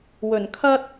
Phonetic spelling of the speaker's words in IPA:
w ɵ˨˩ n kʰ ɐ˥ t̚

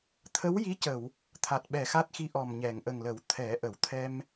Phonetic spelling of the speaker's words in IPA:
t̪ʰ ə˧˥ w j i˧˥ c ə˨˩˨ w | t̪ʰ a˨˩ t̚ ɓ ɛ˨˩ x a˦˥ t̚ x i˧ ʔ ɔ˨˩ m ɲ ɛ˨˩˨ ŋ ʔ ə˨˩ ŋ l ə˨˩˦ w t̪ʰ ɛ˨˩˦ ʔ ə˨˩˦ w t̪ʰ ɛ˧ m

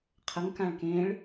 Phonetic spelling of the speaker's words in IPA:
qʰ ə ŋ k ã ɭ k ẽ ɭ

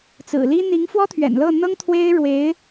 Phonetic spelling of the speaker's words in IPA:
t͡s ɹ̩˨˩ l i˥ n̪ i˧˥ ŋ f w ɔ˥ t̪ʰ ɥ ɛ̰˨˩ n l ɤ˥˩ n̪ ɤ˥ ŋ t̪ʰ w e˥ ɪ̯ ɻ w e˧˥ ɪ̯

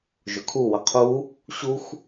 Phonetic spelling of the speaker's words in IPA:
ʒ ʊ kʰ u w ə qʰ u | ɕ u x

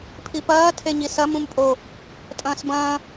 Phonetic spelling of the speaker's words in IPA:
pʰ i p ɐː tʰ e ɲ i s ɐ m ũ m pʼ o | tʼ ɐ̃ː s b ɐ̃ː

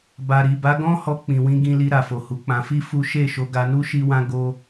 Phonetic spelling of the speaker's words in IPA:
b a˨ ɾ i˨ b a˨˦ ɡ ɔ̃˦ h ɔ˧ k͡p ĩ˨ w ĩ˧ ɡ ĩ˧ l i˧ ɾ a˨ f o˨ h u˨˦ k͡p ã˧ f i˦ f u˦ ʃ e˦˨ ʃ o˧ ɡ a˧ n u˦ ʃ i˦ w ã˦ ɡ o˦

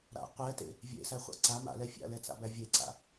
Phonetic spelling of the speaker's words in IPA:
ɾ a̰ qʷ ɛ t ḛ | vʲ ḛ s æ χʷ a̰ ǀ a m a̰ l ɛ fʲ a̰ l ɛ t͡s a̰ b æ vʲ e ǀ a̰

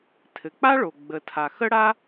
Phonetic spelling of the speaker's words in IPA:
tʰ ɘ˩ k͡p a˥ ɭ o˩ ɡ͡b ə˩ tʰ a˩ x ə˥ ɽ a˥

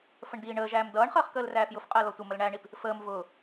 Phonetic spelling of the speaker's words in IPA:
f ə ɳ d iː ɳ əː ʒ æː m d ʌː ɳ χ əː χ k əː l r æː f j ʊ f qʼ əː l ɔ tʷ ə m ə l ɳ æ ɳ i p | f əː m v ʊː

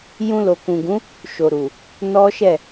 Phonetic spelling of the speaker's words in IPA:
j ũ˧ l o˨ k ũ˨ ɡ ũ˨˦ | ʃ o˨ ɾ u˨ | n ɔ˦ ʃ ɛ˦˨

